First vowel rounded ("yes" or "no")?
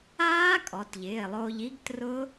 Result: no